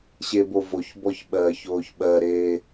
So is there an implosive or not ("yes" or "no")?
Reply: yes